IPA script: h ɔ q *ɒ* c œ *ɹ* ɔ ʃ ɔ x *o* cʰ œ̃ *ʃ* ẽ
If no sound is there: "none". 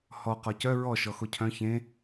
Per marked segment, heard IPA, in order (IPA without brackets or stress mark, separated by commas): ɒ, ɹ, o, ç